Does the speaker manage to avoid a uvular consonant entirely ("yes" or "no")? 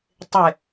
yes